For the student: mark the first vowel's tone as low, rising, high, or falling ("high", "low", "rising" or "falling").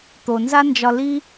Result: low